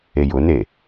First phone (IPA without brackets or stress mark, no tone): e